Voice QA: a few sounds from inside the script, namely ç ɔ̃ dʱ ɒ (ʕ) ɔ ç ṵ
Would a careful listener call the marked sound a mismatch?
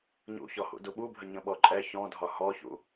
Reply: yes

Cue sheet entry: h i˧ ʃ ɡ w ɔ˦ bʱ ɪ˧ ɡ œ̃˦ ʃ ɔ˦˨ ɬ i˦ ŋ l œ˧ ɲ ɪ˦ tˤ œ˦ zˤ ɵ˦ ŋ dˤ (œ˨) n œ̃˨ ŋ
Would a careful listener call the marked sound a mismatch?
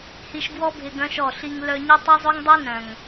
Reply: yes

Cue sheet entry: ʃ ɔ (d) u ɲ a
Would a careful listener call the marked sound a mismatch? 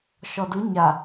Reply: no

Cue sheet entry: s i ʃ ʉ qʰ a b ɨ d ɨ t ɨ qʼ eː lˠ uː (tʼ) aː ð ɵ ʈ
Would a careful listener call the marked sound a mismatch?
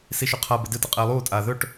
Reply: no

